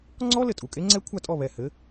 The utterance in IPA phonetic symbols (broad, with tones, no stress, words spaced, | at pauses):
ŋ͡ǀɔ˦˥ lɘ˧˩tʼu˩˧˩kʼe˦˥ŋ͡ǀɛ˦˥ kʷʰa˥˩tʼɔ˥˩βɛ˧˩ hɘ˨˥